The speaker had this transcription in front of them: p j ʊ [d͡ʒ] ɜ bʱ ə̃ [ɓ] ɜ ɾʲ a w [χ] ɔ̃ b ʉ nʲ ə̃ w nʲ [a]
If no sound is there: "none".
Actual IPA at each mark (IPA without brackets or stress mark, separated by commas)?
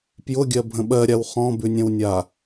ɡʲ, ɓ, χ, a